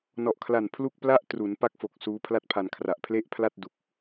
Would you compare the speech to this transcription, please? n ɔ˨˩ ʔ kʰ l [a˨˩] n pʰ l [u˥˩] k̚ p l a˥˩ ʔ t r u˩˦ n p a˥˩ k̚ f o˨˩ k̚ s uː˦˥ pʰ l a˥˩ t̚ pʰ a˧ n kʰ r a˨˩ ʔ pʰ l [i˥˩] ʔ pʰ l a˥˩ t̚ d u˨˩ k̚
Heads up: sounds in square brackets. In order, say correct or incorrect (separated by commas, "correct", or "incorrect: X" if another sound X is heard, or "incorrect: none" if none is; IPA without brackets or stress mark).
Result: correct, correct, incorrect: e˥˩